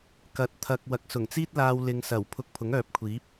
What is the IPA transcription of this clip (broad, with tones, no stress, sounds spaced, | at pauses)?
k ɐ˨˥ t̚ t̪ʰ ɐ˨ k̚ w ɐ˨˥ k̚ s ʊ˨˩ ŋ t͡s iː˥ t̚ l aː˧ w l ɪ˨ ŋ s ɐ˨˩ w pʰ ʊ˧ k̚ pʰ ʊ˨˥ ŋ œː˨ p̚ kʷʰ iː˨˥ p̚